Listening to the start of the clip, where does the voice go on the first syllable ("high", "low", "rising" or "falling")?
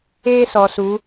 high